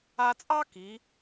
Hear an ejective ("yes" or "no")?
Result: yes